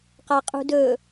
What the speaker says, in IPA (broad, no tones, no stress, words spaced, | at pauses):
qaqʼṳdɵ